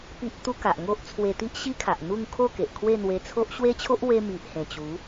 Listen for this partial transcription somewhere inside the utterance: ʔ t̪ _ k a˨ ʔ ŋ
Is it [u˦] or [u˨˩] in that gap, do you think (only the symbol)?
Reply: u˦